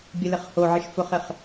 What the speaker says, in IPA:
bʲ ə l ɪ χ h o ʕ ɪ ʃ f ʊ χ ɪ χ

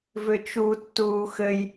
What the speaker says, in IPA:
v ʏ t͡ʃ u tː uː x ɘ j

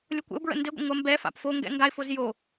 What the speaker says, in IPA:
lʲ o kʷ ə̰ ʊ̯ b ɹ ə̰ n d ɘ ɡʷ ə̰ ŋʷ ɐ m b ɛ f a̰ p f o ŋ ɡ ɛ̰ ŋ ɡ a ɪ̯ f o z j o

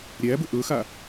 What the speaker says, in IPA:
ɾʲ æ b ə ʔ ɵ x a

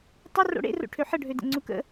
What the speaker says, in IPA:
tˤ ə r o̰ ɽ ḛ r o̰ ʈʰ ø ħ ə ɖʱ ø d ə̰ ŋ͡ǀ u k ə̰

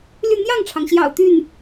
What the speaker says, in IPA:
l y˥˧ n̪ j ɑ˥˩ ŋ ʈ͡ʂʰ ɑ˩ ŋ ɕ j ɑ̰˨˩ ʊ̯ t̪ y˥˩ n

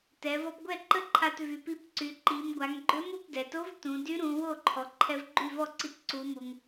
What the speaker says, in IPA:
t ɛ˩˧ v ɔ˧ p ɡʷ ɛ˥˩ ǃ ə˥˩ ǃʰ a˧ t v y˩˧ p i˧˥ p ǀ y˩˧ ǃ i˩˧ m ɡʷ a˩˧ ŋ ɡ͡ǃ ø˧˥ m u˩˧ p d ɛ˩ t o˧˥ v t ũ˩˧ d y˧˥ ɾ ũ˩˧ w o˥˩ ǃʰ ɔ˩ ǃʰ ɛ˧ v ɡ͡ǃ y˥˩ v ɔ˥˩ ǀ i˧ t ǀ u˩˧ m u˩ ŋ

